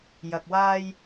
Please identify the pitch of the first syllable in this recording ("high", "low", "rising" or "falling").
low